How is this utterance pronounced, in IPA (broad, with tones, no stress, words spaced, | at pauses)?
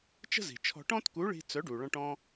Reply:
t͡ʃə̤˥zi̤˩t͡ʃʰɔ̤˧ ʈɔ̃˥tku˨˥ɭi̤˧ t͡sœ˨˥ɖu˩ɭɔ̃˧ʈ ɔ̃˧